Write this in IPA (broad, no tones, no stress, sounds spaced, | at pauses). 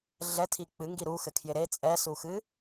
ɮ ɛ tʰ i k͡p ɨ ŋ ɡ i ɾ u x ɘ kʰ j ɪ ɾ e t͡sʼ ɛ s u x ɨ